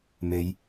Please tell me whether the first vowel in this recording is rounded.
no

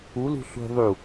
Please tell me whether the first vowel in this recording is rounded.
yes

